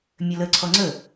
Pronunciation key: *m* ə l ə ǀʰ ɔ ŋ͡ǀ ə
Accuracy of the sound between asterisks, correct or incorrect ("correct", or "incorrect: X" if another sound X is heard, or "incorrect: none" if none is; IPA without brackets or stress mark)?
incorrect: mʲ